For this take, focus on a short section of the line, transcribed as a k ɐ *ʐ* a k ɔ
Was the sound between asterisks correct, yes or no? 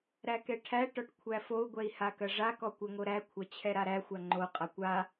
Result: yes